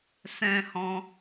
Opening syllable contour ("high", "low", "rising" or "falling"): high